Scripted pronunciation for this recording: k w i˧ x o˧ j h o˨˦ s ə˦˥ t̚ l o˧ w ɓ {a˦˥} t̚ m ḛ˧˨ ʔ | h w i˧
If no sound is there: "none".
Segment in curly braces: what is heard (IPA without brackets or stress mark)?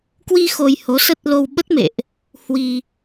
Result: ə˦˥